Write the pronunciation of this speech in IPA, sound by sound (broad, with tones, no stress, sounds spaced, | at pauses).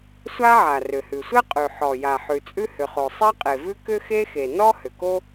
sʷ a˥ ʕ a˩ r ʏ˩ h ʉ˩ sʷ ɛ˥ qʼ ʉ˩ ħ ɔ˩ j a˩ ħ ʉ˩ t͡sʼ ʉ˥ h ʏ˩ χ o˩ sˤ ɛ˥ qʼ e˩ v ʉ˥ k ʏ˥ x e˥ x e˩ n ɔ˥ h ʏ˩ k o˥